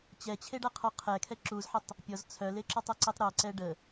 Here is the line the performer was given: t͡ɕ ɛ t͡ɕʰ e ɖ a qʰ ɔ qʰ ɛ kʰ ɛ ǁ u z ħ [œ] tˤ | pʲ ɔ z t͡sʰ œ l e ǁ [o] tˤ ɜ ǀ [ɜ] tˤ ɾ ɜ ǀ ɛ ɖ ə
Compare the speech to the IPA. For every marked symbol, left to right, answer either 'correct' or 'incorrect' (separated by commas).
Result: incorrect, incorrect, incorrect